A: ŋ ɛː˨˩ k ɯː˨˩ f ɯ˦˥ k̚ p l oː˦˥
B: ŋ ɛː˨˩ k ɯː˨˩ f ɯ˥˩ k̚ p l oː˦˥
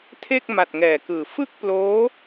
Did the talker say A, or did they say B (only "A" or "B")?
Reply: B